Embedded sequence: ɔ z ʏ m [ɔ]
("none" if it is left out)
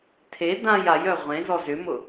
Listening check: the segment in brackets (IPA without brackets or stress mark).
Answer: ʊ